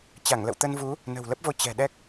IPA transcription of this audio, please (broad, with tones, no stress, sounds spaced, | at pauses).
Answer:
t͡ɕ a˧˩ ŋ l ə̰˧˨ w t̪ ə˧ n v u˨˦ | n ə̤˨˩ w l ə˦˥ p̚ v o˧ t͡ɕ ɛ̤˨˩ ɗ ɛ˦˥ k̚